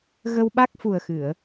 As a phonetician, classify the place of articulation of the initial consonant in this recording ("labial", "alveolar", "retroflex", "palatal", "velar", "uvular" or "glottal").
velar